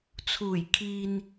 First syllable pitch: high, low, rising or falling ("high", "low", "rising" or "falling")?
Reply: low